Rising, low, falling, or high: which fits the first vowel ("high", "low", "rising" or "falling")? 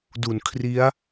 low